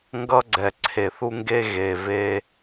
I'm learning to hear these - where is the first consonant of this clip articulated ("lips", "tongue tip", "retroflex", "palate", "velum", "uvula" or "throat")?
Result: velum